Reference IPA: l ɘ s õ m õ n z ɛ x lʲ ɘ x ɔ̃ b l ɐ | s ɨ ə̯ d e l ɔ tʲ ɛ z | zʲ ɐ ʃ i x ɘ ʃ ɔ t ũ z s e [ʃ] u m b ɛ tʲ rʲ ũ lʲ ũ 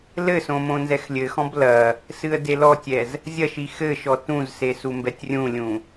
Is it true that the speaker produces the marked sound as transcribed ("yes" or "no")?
no